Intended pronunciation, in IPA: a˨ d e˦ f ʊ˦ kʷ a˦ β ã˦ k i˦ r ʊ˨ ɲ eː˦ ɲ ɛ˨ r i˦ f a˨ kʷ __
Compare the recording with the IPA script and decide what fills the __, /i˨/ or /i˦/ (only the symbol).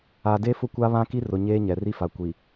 i˨